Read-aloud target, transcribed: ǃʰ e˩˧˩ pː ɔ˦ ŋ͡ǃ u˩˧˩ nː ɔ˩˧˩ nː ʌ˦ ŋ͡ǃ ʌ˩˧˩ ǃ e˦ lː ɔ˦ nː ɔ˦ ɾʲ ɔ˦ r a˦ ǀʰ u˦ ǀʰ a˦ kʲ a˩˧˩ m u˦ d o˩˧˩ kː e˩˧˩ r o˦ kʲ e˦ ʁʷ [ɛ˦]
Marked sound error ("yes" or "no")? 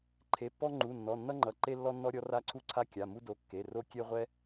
no